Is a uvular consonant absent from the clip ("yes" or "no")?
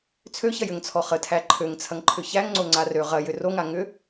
no